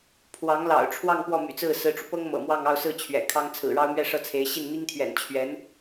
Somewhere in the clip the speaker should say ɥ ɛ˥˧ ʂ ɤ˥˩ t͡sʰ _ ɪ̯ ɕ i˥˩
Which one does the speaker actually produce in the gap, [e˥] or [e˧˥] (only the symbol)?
e˧˥